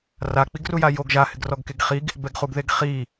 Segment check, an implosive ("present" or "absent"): absent